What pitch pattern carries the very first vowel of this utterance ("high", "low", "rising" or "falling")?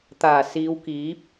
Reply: low